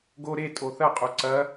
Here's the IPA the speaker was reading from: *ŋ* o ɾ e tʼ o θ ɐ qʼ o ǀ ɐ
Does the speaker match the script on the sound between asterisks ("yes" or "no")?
no